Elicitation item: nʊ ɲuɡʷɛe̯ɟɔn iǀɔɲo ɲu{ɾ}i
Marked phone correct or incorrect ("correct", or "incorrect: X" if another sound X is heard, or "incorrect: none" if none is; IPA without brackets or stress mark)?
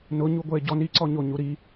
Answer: correct